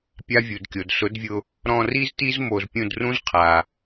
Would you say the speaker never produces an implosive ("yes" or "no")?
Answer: yes